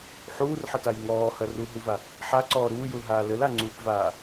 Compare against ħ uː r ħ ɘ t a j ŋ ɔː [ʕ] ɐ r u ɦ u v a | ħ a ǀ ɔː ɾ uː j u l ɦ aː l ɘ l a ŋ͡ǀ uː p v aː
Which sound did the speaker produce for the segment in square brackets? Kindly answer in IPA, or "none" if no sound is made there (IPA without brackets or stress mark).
h